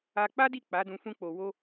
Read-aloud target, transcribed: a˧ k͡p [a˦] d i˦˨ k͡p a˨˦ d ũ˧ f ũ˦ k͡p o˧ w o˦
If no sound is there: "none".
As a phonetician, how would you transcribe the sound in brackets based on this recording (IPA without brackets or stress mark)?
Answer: a˦